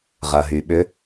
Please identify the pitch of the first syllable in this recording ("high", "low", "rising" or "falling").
low